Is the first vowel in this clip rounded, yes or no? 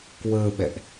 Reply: no